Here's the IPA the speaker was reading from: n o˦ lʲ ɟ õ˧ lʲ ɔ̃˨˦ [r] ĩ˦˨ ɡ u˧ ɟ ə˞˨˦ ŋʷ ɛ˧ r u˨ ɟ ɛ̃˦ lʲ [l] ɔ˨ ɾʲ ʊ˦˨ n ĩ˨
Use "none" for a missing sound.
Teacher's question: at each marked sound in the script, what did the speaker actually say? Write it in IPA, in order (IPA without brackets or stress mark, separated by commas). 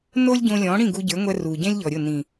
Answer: ɽ, ʎ